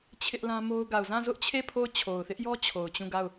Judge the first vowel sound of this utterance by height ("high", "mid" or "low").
high